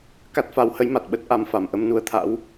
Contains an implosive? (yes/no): yes